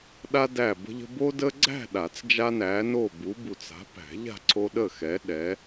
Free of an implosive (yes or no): no